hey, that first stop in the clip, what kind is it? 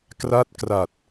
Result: plain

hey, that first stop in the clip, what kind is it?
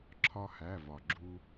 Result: click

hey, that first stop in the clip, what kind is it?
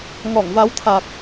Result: aspirated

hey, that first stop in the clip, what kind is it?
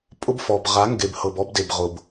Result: ejective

